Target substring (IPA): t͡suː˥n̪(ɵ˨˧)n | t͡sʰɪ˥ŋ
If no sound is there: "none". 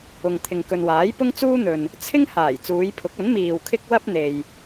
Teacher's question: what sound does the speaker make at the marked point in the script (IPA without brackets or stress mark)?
ɵ˨